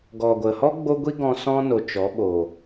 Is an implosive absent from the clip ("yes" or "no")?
no